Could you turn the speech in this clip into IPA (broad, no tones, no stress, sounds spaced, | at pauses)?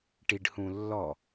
ʈ i ɖ h ũ lː ɔ